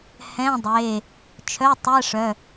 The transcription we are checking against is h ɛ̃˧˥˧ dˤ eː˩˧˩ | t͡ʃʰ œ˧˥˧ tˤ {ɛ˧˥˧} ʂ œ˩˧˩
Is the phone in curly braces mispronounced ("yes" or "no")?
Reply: no